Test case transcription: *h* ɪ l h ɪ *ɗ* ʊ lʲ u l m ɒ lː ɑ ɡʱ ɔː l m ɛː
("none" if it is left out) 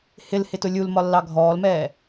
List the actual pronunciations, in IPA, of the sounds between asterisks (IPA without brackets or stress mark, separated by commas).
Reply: h, t